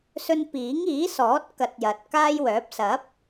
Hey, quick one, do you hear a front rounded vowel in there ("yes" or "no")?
yes